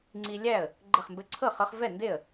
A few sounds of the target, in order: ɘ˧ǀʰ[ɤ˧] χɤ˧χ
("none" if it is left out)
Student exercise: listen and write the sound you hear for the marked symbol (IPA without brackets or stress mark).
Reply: ɤ˥˩